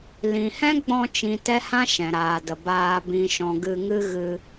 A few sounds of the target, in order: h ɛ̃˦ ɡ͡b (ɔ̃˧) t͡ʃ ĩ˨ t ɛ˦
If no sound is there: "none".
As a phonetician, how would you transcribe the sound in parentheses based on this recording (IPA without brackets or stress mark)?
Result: ɔ̃˧